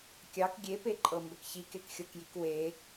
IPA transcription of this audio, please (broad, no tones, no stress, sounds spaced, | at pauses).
kʲ ɑ k ɡʲ e p e ǃʼ ɤ m b ə k ç i k e k xʲ ɤ k j i k w e